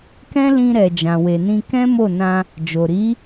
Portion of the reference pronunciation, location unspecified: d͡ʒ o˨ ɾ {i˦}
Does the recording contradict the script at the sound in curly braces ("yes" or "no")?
yes